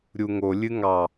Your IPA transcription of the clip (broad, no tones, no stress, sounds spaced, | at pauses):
ɾʲ u ŋ o lʲ ɨ ŋ ɑ